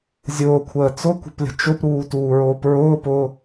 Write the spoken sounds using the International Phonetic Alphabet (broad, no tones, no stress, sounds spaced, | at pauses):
zʲ ʊː kʷʰ əː t͡s ʊ kʷ ə̤ p lʲ ə̤ t͡ʃ ʊ p ɾ uː t uː ɹ oː p ɹ ʊː p ʊː